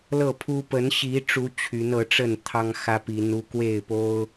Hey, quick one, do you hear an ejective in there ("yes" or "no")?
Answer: no